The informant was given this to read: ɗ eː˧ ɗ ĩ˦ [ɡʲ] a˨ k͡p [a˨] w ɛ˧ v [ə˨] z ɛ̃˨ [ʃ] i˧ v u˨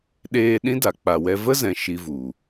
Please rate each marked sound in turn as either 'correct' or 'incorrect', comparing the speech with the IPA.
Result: incorrect: d, correct, incorrect: ə˦, correct

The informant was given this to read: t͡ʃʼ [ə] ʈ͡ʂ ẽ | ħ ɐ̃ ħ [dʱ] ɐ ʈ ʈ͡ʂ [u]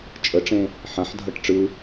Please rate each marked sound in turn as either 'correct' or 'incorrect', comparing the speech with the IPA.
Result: correct, correct, incorrect: ɯ

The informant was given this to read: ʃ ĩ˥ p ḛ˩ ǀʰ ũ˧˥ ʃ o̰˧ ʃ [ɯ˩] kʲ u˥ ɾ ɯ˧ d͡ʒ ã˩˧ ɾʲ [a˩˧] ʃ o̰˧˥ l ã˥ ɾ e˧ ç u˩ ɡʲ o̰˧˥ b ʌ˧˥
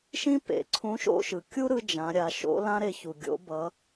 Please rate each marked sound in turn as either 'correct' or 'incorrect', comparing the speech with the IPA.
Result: correct, correct

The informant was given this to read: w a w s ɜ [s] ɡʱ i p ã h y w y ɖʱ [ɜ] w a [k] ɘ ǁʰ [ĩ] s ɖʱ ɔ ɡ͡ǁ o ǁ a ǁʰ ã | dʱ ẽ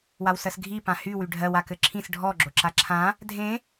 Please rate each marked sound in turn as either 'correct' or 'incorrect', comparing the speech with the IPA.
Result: correct, correct, correct, correct

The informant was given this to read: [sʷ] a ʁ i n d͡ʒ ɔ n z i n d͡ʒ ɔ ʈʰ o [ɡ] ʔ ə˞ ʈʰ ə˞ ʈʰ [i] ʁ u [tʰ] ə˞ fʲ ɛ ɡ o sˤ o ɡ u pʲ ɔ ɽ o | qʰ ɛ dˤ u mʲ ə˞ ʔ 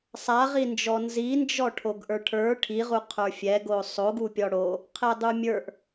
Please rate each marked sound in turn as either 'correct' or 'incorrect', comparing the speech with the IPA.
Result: incorrect: sˤ, correct, correct, incorrect: qʰ

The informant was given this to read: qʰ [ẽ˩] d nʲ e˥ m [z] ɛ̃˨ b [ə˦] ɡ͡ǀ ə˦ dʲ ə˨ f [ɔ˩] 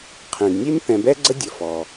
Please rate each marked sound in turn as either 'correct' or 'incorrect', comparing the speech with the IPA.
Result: correct, incorrect: θ, incorrect: ɛ˦, correct

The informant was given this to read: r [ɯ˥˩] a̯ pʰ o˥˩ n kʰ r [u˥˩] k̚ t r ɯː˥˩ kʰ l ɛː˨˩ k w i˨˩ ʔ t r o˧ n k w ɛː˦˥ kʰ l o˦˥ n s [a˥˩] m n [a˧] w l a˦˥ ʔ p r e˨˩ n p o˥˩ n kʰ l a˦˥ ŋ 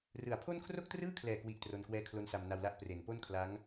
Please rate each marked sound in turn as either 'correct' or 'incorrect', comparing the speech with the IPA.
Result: incorrect: ɯ˨˩, incorrect: o˥˩, incorrect: a˧, correct

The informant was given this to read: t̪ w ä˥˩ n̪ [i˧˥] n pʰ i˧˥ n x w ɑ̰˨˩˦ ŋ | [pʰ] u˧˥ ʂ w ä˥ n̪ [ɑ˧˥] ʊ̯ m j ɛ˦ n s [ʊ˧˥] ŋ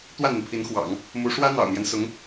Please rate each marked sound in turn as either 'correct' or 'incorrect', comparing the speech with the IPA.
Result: incorrect: i˩, incorrect: m, incorrect: ɑ̰˨˩, correct

